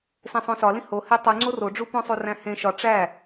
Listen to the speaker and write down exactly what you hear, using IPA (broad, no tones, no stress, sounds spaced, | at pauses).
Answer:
s ẽ sˤ õ s ɒ l ĩ h o h e tˤ u ŋ͡ǀ o r o ɖ͡ʐ u p õ sˤ u r æ̃ h ẽ ʃ ɒ ʈ͡ʂ æ